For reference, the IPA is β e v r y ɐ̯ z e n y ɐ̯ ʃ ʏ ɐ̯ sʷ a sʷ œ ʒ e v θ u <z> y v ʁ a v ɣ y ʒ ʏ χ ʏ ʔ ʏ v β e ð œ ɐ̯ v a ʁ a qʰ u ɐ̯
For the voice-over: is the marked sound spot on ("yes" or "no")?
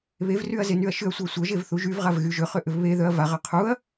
no